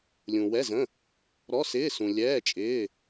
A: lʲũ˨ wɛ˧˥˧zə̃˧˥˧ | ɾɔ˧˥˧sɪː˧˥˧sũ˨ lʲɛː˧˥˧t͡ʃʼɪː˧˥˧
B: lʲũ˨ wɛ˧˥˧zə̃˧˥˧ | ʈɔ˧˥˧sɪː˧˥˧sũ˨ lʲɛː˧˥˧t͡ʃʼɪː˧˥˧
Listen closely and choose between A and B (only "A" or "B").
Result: A